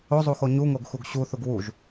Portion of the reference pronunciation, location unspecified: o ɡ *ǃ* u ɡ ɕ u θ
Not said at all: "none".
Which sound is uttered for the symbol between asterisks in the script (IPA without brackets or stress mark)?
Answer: x